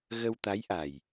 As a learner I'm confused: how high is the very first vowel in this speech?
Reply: mid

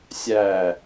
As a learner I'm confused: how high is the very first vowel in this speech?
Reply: low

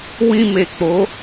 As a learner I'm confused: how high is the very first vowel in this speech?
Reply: high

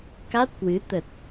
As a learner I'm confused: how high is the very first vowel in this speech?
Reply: low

